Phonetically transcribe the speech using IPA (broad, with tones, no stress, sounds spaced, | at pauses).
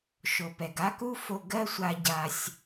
ʃ o˨ p ɛ˨ ɡ a˦ k u˦ f o˧ ɡ ɜ˦ sʷ a˧ ɟ a˧ sʲ